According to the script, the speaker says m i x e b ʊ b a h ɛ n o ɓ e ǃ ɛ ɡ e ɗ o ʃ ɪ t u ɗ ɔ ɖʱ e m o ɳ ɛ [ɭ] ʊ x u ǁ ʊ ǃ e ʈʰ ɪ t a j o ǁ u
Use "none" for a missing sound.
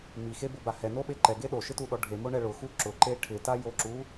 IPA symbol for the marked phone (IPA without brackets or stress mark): ɭ